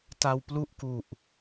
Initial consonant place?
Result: alveolar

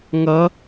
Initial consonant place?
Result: velar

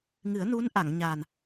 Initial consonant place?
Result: velar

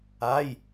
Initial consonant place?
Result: palatal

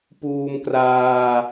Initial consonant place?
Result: labial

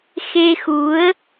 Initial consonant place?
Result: velar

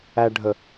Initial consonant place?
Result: retroflex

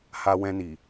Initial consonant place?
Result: glottal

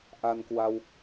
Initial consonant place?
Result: glottal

